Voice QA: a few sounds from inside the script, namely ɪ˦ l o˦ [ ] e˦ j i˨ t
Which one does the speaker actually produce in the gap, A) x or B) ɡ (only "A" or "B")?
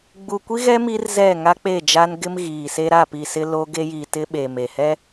B